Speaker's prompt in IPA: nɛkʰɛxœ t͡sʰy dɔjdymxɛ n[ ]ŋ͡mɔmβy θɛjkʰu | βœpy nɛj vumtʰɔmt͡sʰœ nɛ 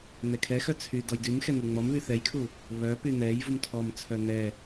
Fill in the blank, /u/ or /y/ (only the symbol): u